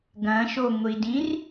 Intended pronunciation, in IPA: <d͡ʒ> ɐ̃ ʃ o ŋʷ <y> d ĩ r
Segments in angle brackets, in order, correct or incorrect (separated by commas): incorrect, incorrect